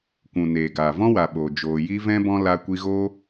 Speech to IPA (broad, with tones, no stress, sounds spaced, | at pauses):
kʷ ũ˨ n eː˨ ɡ aː˨ v ɔ̃˦ w a˨ ɓ oː˨ d͡ʒ oː˨ j i˧ v ɛ̃˧ b ɔ̃˧ l a˧ kʷ i˧ ɣ o˦